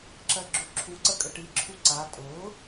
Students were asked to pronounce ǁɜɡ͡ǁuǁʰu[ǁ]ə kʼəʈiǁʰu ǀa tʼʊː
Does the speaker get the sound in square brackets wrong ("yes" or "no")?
yes